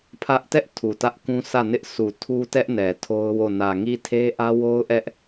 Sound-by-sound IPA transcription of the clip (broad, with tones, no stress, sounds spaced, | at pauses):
pʰ ä˦ ʔ t ɛ˦ ʔ tʰ u˨ t ä˦ ʔ k ũ˦ sʰ ä˦˨ n ɪ˦ ʔ sʰ u˨ tʰ u˦ t ɛ˦ ʔ n ɛ˨ tʰ o˦ ʊ̯ w o˦˨ n ä˨ ŋ i˦˨ tʰ e˦ ʔ ä˦ w o˦ ʊ̯ ʔ ɛ˦ ʔ